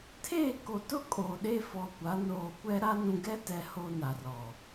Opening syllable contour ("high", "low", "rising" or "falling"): falling